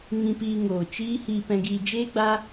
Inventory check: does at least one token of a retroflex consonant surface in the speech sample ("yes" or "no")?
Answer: no